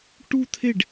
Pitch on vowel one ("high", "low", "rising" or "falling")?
falling